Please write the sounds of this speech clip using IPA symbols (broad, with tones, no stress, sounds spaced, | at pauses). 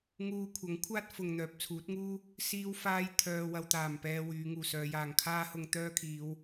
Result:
ŋ uː˧ kʷʰ ɐ˨˥ ŋ kʷʰ aː˥ t̚ f ʊ˨ ŋ n̪ œː˨ p̚ t͡sʰ uː˨˥ t̚ ŋ uː˥ | s iː˧ w f aː˧ j t̪ʰ œː˧ w ɐ˧ w t̪ aː˨˩ m p ɛː˧ w yː˨˧ ŋ uː˨ s œː˨˧ j aː˨ ŋ kʰ aː˥ h ʊ˧ ŋ t̪ œː˥ kʰ iː˨˧ w